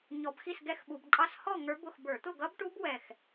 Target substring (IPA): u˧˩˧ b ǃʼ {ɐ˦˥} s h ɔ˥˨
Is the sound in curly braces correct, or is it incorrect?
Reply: incorrect: ɑ˦˥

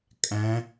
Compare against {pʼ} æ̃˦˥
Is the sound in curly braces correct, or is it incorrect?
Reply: incorrect: kʼ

